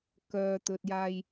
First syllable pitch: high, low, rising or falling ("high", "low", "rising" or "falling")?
low